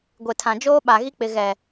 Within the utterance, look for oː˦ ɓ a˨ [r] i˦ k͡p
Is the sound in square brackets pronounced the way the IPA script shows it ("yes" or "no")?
no